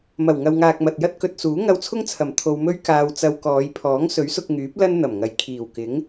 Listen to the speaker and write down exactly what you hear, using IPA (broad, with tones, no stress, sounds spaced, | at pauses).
m ɐ˨˩ w ŋ ɐ˨ w ŋ aː˨ k̚ m ɐ˨ t̚ j ɐ˥ t̚ k ɵ˨ t̚ s uː˨˥ ŋ ɐ˧ w t͡sʰ ʊ˥ ŋ t͡sʰ ɐ˨˩ m t̪ʰ o˧ w m ɵ˥ ɥ k aː˧ w t͡s ɐ˧ w k ɔː˨˧ j pʰ ɔː˨˥ ŋ s ɵ˨˥ ɥ s ʊ˧ k̚ ŋ yː˨˥ p̚ l ɐ˥ n n̪ ɐ˨˩ m ŋ ɐ˨ j kʰ iː˨˩ w k ɪ˨˥ ŋ